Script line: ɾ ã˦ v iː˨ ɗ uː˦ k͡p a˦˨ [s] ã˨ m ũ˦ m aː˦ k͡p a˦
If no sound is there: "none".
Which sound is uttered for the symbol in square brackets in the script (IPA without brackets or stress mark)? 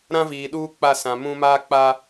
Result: s